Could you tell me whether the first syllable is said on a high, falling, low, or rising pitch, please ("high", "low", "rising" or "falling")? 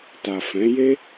low